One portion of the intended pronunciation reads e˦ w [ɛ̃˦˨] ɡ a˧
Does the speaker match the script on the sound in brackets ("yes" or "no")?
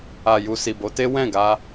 yes